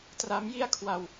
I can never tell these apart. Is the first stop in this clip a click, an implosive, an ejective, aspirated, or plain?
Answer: plain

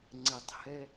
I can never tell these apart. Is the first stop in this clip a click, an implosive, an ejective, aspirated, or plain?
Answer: click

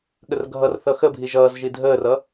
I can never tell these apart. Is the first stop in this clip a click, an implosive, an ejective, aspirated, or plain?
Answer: implosive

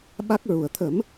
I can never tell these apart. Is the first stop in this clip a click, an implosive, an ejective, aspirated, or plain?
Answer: implosive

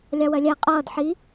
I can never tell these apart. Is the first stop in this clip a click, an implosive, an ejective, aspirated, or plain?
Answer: ejective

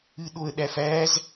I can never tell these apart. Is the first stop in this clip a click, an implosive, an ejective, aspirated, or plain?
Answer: implosive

